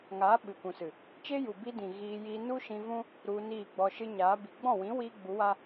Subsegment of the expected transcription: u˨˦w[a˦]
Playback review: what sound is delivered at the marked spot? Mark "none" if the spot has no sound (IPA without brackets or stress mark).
a˦